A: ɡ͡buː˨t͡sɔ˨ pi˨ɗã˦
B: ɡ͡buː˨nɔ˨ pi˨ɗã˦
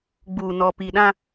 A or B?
B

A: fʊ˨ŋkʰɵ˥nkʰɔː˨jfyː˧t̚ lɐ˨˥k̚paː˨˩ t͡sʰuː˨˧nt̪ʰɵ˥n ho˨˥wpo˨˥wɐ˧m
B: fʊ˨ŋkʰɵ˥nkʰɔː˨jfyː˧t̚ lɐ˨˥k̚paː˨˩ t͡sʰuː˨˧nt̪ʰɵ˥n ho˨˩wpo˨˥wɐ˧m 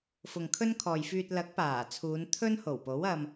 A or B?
B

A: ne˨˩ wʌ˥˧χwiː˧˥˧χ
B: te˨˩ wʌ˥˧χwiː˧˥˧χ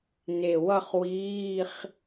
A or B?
A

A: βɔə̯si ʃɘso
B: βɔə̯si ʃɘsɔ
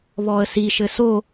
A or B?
A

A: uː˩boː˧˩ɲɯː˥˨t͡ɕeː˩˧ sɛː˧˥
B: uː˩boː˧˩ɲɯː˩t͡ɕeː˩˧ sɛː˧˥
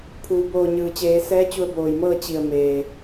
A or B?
B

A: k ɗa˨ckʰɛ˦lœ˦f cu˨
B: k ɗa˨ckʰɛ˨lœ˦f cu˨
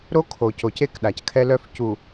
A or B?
A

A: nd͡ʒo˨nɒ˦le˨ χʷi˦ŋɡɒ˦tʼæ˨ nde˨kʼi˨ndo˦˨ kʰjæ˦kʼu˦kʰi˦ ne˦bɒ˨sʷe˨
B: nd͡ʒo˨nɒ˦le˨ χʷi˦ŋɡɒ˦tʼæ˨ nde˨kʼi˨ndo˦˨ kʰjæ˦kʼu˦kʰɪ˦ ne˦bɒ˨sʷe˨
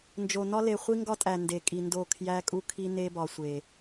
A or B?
A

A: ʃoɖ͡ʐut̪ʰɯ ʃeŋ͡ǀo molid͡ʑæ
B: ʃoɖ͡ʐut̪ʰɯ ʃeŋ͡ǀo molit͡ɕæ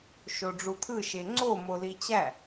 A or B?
B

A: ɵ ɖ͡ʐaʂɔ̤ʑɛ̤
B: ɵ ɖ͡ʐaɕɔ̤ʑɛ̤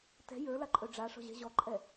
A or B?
A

